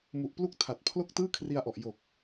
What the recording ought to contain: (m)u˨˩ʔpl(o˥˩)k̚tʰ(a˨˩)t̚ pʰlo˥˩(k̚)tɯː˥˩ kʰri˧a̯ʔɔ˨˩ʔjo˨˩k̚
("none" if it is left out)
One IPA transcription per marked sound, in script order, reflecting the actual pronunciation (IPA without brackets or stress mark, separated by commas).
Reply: m, u˥˩, a˨˩, k̚